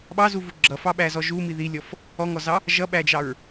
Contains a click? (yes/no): yes